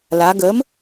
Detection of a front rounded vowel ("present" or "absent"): absent